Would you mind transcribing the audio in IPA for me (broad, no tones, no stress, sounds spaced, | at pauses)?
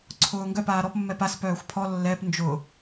ǀʰ ʊː ŋ ɡ œ p aː ɾ ɔ p mː ɛ p a s p œː xʷ pʰ ɔ lː ɛ p n d͡ʒ ʊ